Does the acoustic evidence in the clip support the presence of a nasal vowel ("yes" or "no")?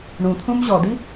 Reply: yes